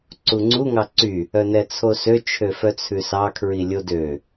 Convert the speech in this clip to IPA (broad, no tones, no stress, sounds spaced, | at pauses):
ǀ u ŋ͡ǀ u ŋ ɑ ǀ y | œ n ɛ t͡sʰ o s ø t͡ʃʰ ø f œ t͡sʰ ʉ s ɑ kʰ ɹ i lʲ o d ø